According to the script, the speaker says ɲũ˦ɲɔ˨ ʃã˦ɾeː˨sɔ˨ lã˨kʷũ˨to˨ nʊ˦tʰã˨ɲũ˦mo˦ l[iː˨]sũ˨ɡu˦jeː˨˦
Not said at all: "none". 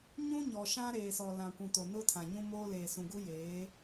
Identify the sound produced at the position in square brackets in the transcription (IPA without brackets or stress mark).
eː˨